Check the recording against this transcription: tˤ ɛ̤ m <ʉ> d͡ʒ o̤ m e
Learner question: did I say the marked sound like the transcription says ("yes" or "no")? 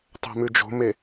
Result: yes